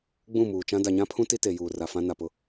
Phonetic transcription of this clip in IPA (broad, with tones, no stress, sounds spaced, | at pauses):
ɡ͡b ũ˦˨ m uː˨ t͡ʃ ã˦ d a˨ ɲ ã˦ pʰ ũ˦ t i˦ t e˨ j uː˨ r a˨ f ã˦ n a˨ p ʊ˦